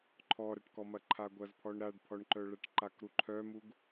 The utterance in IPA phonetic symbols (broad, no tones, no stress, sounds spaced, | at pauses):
ǃʰ ɔ ɾ ɐ ʈ k ɔ m ɐ ǃʰ a ɡʷ ɐ z pʰ ɔ ɳ ɾ a ɖ pʰ ɔ ɳ ǃ œ ɭ ɐ ʈ ǃ a k ɾ u ǃʰ œ m u ɡ